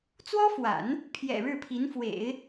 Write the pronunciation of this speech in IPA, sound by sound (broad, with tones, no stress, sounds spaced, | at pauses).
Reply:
t͡s w ɔ˥ f w a̰˨˩˦ n | pʰ j ɛ̰˨˩ ɻ ɻ̩˥˩ pʰ i˧˥ n f w ḛ˨˩˦ ɪ̯